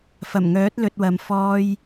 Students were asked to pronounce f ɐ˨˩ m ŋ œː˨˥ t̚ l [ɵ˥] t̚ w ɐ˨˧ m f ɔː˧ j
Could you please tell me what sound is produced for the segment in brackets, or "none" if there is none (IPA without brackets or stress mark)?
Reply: ɵ˧